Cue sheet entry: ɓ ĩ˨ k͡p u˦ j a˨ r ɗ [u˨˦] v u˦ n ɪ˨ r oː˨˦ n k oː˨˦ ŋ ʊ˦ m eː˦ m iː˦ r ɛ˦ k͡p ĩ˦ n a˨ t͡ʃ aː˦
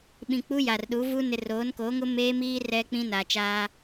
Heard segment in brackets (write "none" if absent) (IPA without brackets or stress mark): u˨˦